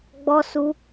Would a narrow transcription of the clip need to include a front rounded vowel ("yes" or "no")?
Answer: no